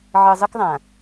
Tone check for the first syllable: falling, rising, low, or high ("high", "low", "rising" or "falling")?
low